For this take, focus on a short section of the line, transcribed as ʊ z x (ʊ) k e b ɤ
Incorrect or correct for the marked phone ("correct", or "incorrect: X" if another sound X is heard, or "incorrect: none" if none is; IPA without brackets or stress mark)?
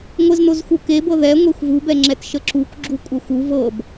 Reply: incorrect: u